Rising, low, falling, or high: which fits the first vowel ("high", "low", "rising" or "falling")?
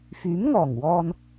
rising